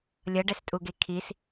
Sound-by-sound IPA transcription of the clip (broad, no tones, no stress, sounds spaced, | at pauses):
lʲ ʌ ɖ ɛ s tʼ u ɡ e kʰ i s